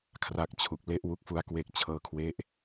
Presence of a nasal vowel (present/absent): absent